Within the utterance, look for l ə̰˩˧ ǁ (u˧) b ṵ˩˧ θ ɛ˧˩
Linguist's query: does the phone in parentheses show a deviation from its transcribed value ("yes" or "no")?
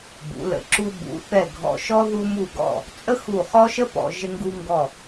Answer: no